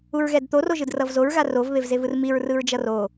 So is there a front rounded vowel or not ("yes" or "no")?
no